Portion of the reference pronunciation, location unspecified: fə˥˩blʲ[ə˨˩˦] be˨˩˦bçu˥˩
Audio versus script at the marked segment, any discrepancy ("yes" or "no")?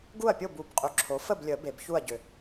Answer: no